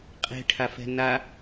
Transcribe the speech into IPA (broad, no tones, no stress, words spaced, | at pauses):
qʼe̤ʈʰafɛ̤ na